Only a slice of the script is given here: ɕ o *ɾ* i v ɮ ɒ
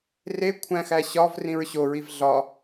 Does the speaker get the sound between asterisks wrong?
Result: yes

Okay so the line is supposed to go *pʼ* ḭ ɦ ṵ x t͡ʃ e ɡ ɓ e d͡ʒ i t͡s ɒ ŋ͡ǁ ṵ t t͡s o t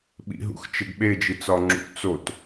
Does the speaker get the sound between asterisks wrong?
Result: yes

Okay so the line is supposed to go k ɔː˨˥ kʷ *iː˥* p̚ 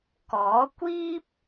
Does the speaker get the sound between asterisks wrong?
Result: no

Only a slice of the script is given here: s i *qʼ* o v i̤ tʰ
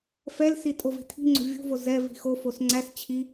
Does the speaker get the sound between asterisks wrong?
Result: yes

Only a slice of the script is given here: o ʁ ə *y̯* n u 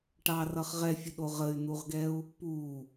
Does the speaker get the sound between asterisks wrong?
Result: no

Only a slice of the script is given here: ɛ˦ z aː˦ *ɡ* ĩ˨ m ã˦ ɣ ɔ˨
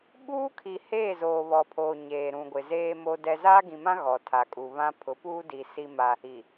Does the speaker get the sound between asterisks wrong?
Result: no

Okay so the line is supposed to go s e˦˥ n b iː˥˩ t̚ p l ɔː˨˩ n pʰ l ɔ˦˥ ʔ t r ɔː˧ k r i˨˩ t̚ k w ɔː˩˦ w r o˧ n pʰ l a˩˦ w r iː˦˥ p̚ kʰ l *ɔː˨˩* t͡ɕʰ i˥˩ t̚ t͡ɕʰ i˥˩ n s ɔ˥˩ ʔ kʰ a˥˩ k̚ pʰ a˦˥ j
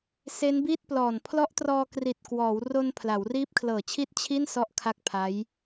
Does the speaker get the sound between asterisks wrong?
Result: yes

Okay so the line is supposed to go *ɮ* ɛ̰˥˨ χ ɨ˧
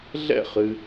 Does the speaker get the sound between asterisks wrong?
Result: no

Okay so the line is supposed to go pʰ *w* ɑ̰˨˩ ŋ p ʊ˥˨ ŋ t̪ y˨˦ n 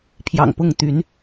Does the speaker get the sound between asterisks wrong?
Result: yes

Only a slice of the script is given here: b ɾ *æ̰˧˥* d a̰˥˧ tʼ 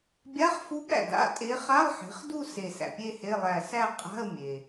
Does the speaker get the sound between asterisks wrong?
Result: yes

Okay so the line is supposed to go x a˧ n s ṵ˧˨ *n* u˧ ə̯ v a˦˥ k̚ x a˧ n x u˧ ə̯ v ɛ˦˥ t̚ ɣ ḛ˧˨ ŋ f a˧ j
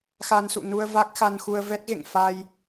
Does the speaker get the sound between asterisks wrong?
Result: no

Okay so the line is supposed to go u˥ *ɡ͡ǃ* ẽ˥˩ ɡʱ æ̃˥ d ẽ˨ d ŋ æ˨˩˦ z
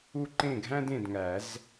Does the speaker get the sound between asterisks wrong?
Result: yes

